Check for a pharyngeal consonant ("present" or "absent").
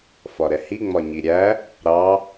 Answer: absent